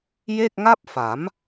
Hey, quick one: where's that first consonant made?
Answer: palate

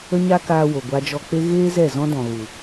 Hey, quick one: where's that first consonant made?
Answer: palate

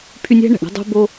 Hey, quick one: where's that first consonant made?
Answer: lips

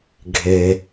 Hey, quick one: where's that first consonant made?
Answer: velum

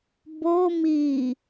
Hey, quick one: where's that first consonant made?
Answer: lips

